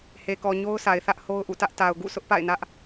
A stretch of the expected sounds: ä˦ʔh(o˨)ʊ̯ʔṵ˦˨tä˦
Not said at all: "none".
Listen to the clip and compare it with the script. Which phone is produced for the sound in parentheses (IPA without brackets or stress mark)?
o˦